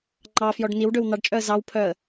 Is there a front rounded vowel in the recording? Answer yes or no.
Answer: yes